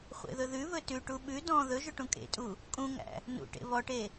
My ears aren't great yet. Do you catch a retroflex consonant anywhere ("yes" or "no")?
yes